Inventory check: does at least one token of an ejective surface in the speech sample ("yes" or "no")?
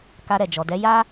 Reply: no